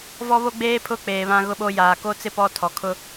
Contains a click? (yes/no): no